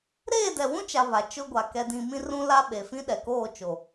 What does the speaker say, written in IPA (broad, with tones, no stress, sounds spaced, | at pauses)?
ɾ eː˦˨ d ɛ˨ w ũ˦ t͡ʃ a˨ β a˨ t͡ʃ ʊ˦ ɡʷ a˨ k ɛ˨ d ĩ˨ m ĩ˦ r ũ˦ l a˦ ɓ e˨ f ĩ˦ ɗ ɛ˨ k oː˦˨ t͡ʃ o˨